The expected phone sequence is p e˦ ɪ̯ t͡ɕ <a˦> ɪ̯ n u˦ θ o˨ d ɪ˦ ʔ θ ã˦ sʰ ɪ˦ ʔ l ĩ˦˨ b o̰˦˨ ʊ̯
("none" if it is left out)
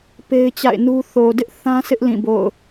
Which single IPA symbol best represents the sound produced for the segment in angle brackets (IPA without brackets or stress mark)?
a̰˦˨